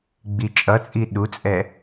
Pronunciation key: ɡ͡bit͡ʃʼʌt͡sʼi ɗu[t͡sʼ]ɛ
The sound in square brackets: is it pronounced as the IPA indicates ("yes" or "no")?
yes